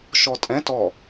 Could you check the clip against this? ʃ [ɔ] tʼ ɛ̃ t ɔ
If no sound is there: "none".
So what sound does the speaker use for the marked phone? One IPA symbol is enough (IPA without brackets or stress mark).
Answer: ɔ